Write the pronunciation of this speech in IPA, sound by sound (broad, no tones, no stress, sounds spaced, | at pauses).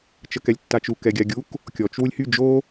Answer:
t͡ʃ ə k ɛ lʲ tː a t͡ʃ u k ɛ ɡʲ a ɡʲ u k | kʲ ɔ t͡ʃ w u lʲ h y d͡ʒ o